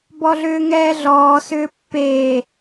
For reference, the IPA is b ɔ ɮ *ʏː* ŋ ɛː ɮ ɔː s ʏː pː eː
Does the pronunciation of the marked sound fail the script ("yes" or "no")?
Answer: no